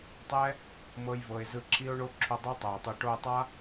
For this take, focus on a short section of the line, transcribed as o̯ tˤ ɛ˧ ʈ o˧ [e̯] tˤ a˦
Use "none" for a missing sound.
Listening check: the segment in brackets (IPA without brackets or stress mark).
e̯